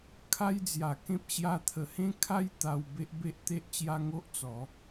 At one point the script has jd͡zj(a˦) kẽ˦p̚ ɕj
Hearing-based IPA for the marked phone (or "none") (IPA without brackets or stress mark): a˨˩